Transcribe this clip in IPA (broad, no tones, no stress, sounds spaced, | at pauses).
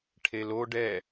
ʈʰ e l o ɖ ɛ